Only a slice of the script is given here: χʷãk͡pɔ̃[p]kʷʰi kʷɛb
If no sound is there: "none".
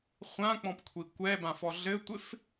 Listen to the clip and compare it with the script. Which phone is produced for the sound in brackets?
p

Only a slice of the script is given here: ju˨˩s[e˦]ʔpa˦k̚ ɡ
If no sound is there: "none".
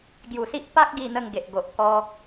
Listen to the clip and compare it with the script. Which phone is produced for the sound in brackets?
i˦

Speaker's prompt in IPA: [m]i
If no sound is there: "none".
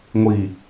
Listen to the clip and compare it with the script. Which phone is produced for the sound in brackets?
ŋʷ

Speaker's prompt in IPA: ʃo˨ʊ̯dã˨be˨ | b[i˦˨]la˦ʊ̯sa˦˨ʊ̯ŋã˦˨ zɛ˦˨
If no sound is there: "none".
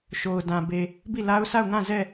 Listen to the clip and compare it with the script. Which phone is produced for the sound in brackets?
i˦˨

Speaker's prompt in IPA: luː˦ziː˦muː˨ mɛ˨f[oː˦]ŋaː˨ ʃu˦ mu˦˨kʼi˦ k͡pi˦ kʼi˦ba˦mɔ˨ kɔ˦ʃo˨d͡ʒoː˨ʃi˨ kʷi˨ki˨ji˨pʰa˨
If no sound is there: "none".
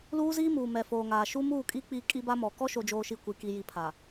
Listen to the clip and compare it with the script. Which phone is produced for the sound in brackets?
oː˨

